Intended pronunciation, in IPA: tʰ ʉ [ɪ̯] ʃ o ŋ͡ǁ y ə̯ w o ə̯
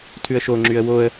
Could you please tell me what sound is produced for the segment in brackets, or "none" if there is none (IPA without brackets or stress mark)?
ə̯